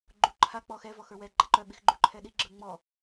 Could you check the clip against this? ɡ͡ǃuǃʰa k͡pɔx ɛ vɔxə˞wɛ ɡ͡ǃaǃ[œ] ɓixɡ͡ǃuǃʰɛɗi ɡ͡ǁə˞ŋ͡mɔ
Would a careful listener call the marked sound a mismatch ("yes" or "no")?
no